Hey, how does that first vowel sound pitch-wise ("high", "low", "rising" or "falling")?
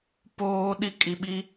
high